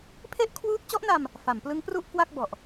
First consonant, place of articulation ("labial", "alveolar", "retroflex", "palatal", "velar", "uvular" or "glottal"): labial